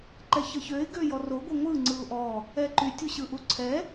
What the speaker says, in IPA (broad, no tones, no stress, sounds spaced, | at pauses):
ǃ ɛ ç ə ç ø ɪ̯ ɡ ø j ɔ r o ɡʷ ə ŋʷ ɯ ŋ͡ǀ ɯ ʊ̯ ʔ ɔ | ɛ ǃ y tʲ u ɕ ɯ ʔ u ǀʰ ɛ